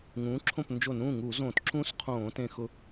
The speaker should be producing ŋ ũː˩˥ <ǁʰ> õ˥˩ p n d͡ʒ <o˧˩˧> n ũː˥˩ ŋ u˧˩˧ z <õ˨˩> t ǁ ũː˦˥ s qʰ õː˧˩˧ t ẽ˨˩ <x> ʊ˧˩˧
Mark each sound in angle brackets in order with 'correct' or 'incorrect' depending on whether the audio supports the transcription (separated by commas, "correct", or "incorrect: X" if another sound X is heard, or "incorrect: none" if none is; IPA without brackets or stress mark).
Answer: correct, correct, incorrect: õ˧˩˧, correct